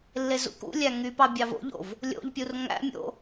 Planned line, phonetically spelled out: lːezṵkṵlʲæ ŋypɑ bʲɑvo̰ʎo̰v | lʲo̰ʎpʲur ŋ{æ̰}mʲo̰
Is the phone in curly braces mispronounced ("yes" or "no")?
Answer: no